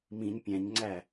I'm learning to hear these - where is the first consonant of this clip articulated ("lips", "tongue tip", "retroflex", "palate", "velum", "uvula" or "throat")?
lips